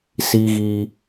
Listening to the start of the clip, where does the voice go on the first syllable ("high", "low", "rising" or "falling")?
high